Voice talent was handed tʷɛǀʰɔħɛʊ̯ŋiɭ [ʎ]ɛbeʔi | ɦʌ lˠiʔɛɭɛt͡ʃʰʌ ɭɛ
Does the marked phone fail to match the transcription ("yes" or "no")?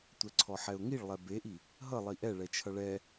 yes